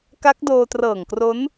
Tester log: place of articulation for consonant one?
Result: velar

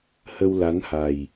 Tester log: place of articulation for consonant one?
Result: glottal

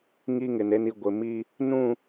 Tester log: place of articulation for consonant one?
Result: velar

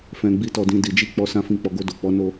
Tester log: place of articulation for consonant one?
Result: labial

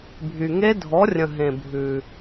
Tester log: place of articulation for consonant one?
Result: labial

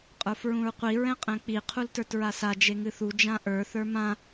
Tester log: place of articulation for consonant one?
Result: uvular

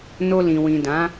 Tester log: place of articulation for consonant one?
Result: alveolar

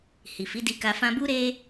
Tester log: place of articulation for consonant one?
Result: glottal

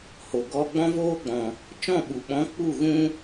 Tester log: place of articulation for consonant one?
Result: glottal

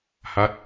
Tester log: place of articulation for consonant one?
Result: glottal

